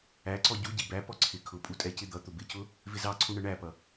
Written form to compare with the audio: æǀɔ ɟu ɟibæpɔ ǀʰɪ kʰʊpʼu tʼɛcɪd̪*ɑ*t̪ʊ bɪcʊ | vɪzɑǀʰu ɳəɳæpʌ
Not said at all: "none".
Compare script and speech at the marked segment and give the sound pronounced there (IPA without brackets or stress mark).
ʌ